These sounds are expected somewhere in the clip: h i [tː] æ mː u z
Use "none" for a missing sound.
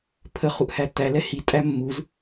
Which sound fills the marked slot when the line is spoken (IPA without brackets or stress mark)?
tʼ